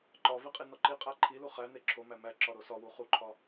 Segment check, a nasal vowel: absent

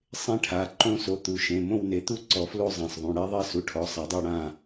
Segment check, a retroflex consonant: present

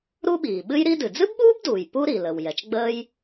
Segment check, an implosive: present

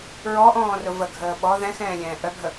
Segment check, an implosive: present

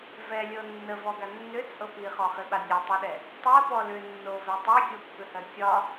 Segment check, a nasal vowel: absent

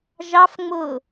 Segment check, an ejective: absent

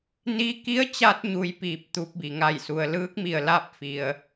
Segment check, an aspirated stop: absent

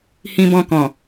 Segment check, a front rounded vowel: absent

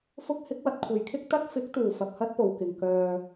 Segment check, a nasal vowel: absent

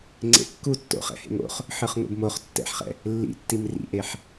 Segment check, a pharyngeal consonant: present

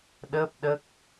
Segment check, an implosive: present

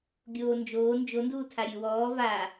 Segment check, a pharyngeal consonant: absent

